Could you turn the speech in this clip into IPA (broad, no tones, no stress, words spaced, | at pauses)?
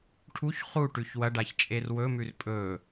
ʈʰuç χuʈʉç wɐɖaç t͡ʃʼerwɵmʉr pʼɵ